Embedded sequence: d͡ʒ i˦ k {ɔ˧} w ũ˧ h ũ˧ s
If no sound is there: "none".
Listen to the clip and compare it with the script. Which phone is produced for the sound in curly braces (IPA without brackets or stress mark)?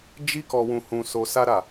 ɔ˧